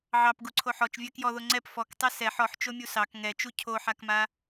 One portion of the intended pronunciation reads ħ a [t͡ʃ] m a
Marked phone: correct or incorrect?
incorrect